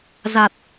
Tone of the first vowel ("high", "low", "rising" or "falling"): low